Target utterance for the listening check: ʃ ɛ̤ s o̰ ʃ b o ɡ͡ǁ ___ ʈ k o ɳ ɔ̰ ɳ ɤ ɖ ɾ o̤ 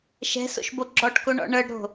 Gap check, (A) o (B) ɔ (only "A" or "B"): B